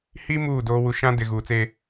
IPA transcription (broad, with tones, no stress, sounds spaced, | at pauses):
h i˦ m uː˦˨ d oː˦ w u˨ ʃ ã˦ d ɪ˨ ɣ uː˨ t͡s e˦